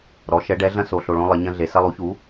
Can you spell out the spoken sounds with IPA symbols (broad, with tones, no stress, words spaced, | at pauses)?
ɾɔ˩˥ʃɛ˩˥ɖɛ˩˥ ɮɐ̃˦so˩˧ɬo˩˧˩ɭõ˦ lˠɘ˩˧ɲɐ̃˦ɮe˩˧ sɐ˦lˠu˩˥çu˩˥